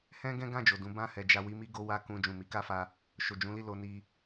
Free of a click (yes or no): yes